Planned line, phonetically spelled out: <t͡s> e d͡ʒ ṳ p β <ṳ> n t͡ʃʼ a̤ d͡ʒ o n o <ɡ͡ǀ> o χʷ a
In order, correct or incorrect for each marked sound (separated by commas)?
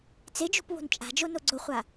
correct, incorrect, correct